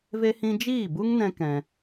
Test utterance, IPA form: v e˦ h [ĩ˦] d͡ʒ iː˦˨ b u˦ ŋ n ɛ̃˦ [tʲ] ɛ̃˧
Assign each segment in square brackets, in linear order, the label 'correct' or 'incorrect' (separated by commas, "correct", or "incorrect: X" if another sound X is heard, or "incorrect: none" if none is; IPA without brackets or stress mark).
correct, incorrect: k